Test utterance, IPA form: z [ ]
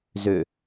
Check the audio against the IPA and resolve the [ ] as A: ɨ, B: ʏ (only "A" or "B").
B